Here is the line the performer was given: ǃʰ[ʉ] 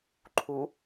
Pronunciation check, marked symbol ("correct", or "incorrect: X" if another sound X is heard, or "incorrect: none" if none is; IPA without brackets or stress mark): incorrect: u